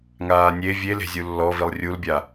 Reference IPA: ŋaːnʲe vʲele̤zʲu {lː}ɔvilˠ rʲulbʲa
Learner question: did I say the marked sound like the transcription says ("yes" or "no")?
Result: yes